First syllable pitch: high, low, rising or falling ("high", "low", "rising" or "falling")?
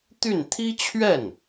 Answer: falling